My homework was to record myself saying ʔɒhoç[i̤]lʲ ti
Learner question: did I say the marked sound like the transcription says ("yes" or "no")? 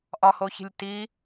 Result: yes